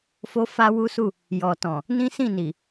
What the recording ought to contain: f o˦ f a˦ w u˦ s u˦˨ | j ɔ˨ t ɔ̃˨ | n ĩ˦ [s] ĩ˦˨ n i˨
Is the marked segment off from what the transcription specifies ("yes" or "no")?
no